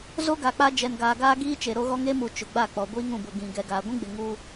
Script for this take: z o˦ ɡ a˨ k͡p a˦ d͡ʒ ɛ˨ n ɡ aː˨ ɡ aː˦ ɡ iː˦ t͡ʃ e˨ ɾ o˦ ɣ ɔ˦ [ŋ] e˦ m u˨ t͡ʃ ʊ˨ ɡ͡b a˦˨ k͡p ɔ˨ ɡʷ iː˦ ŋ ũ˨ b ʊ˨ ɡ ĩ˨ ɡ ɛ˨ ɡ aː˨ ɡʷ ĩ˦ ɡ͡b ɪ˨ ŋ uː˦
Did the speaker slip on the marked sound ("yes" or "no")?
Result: no